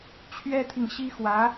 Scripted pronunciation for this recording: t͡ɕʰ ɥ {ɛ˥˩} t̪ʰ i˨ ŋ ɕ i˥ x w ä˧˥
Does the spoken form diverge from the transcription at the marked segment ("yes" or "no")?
yes